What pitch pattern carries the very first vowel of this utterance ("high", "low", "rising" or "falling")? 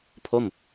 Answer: falling